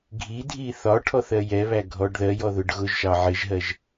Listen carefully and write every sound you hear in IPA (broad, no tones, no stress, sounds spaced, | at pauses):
ɡʱ i dʱ i θ ɒ ʈʰ ɔ θ ɜ j ɛ β æ ɡʱ ɔ ɖ ð ɜ j ɔ ð ʊ ɖ ɣ ʊ ʒ ʃ ɑ ʕ ɪ ʒ ɦ ɜ ʒ